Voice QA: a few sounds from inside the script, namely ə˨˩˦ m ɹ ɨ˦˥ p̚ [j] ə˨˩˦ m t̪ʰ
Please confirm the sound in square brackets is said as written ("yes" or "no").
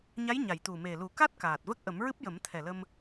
yes